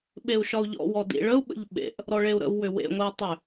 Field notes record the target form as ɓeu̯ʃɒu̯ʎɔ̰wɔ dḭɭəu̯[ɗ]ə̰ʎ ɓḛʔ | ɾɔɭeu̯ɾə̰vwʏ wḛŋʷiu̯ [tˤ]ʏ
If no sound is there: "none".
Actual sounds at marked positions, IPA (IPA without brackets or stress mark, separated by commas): ɓ, tˤ